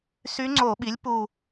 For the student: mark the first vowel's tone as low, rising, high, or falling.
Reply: rising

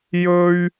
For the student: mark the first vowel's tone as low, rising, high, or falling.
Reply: high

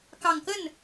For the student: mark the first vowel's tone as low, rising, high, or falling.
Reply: low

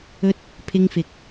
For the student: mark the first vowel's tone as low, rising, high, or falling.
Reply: high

